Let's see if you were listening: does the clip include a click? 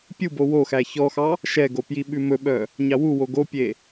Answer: no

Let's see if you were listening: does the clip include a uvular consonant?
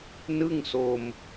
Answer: no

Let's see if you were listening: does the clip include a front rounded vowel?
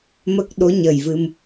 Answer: no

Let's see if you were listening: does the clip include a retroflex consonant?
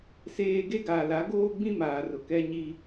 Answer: no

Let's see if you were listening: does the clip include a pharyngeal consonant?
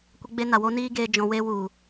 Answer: no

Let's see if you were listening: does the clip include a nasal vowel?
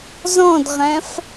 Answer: yes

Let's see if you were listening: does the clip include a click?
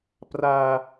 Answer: no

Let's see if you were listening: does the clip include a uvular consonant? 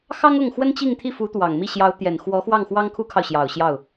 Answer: no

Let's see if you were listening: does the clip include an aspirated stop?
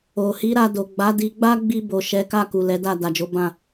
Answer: no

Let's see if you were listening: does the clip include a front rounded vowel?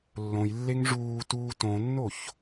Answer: no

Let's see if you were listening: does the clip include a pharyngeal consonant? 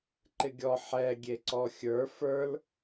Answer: yes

